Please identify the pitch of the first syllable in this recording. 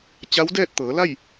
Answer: rising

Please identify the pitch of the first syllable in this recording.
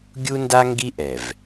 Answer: high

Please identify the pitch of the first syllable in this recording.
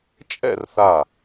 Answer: falling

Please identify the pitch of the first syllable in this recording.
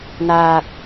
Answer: low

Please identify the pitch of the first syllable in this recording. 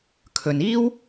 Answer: low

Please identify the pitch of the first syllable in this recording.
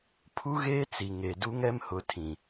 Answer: high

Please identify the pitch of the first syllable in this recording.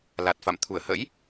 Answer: low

